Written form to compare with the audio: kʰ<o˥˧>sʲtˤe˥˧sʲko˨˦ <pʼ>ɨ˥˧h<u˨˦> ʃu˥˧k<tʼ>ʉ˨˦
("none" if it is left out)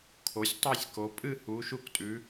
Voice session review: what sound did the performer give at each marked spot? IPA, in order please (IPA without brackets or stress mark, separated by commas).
o˨˦, pʼ, u˨˦, tʼ